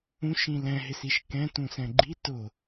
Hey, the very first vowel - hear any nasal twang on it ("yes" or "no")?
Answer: yes